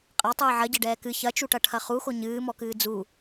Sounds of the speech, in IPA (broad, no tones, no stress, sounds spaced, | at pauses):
qʼ a tˤ ɨː ʕ ɐ ɟ ɛ ɖ ɛː k ɨ ç ɐ t͡ʃ u ʈ ɐ ʈʰ ɐ χ u x o ɲ ɨː m ɔ k ɨː d͡z u